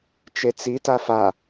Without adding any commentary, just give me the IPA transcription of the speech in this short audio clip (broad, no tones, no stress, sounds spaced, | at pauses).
t͡ʃ e t͡s i t a f a